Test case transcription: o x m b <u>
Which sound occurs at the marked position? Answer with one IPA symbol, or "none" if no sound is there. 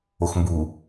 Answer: u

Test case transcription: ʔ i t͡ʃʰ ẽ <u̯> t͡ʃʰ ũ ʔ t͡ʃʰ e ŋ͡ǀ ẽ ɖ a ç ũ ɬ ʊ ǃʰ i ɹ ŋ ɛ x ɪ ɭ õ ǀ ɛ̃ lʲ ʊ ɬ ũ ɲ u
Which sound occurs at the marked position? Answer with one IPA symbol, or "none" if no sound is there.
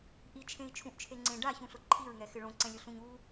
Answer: i̯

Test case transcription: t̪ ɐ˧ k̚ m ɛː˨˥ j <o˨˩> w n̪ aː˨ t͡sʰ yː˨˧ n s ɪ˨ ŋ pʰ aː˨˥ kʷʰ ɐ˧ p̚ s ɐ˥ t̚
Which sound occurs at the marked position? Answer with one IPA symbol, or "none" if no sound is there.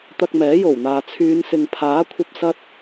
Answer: o˨˩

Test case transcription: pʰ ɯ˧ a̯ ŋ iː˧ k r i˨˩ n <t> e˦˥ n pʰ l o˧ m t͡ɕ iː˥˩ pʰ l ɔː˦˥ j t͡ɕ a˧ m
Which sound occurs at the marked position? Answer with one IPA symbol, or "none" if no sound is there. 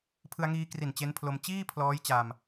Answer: t͡ɕ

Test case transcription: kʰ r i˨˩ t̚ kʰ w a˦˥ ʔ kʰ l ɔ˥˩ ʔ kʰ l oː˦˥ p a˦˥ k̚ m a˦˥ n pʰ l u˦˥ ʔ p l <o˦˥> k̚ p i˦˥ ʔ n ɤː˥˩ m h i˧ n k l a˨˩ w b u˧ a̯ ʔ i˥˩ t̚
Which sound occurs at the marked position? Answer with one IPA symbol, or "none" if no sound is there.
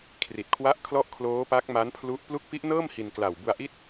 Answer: u˦˥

